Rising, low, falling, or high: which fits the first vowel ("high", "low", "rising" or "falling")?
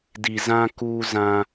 low